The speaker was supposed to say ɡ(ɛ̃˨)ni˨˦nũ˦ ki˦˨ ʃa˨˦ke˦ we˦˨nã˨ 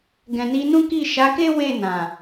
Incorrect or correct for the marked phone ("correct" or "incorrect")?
correct